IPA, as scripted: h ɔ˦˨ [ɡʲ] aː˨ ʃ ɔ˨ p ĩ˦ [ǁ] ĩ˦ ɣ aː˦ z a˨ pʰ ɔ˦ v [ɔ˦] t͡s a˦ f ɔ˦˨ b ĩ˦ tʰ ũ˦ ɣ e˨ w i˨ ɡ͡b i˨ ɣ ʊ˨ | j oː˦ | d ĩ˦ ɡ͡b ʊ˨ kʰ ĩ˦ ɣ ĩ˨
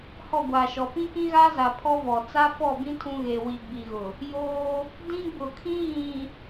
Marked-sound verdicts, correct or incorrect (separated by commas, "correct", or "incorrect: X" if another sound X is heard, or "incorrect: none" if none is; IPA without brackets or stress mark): incorrect: ɡʷ, incorrect: k, incorrect: ɔ˨